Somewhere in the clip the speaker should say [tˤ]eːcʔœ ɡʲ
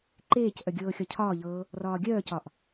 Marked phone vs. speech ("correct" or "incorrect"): incorrect